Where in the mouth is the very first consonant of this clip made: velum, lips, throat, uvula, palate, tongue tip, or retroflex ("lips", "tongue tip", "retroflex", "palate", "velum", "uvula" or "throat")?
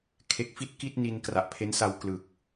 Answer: velum